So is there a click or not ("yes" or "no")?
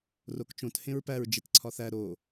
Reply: yes